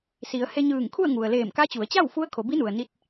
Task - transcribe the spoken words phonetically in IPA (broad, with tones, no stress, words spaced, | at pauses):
si˩˧ə̯ he˧ ɲɯː˧˩ŋkʰu˥˨ə̯ŋu˩ə̯ leː˧˩mka˧˥t͡ɕu˩˧ə̯t͡ɕa˥˨w fu˧˥ə̯kʰo˩˧bi˧˥nu˩ə̯ ni˧t̚